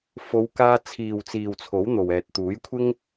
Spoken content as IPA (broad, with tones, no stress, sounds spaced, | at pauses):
f o˨˧ w k aː˧ t͡sʰ iː˨ w t͡s iː˨ w t͡sʰ o˨˥ w n̪ o˨ w ɛː˨ t̚ t̪ uː˨˥ j kʷʰ ɪ˥ ŋ